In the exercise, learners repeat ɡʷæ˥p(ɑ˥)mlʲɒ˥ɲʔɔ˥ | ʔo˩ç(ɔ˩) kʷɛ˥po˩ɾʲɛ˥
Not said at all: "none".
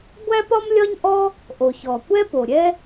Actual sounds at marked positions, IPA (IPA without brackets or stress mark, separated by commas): ɒ˥, ɔ˩